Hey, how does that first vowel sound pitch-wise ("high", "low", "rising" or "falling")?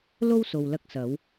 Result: high